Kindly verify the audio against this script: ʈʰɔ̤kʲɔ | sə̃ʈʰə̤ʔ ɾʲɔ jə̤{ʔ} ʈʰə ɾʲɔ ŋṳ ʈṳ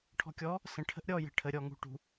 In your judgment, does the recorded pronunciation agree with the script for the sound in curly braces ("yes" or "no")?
no